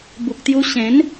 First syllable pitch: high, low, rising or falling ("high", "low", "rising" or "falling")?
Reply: low